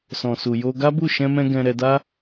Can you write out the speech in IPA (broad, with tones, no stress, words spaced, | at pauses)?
sɔ̃˨su˨jo˧ ɡa˦bu˦˨ ʃɛ̃˧mɛ̃˧ ɡɛ̃˧ ɾɛ˧da˦